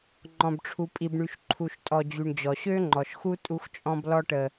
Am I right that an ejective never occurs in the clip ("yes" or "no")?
no